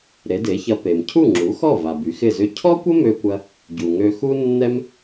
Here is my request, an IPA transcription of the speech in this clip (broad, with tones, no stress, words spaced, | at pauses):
ɾe˩˥de˩˥çɐ˧ pe˩mcʰu˥˩ŋ͡ǁu˩˥xɔ˥˩ va˩ by˩˥xɪ˥˩zʏ˥˩ cʰɔ˥kʷə˥mø˧kʷɐ˧ | ɟu˩ŋø˧xu˥ nːɛ˥m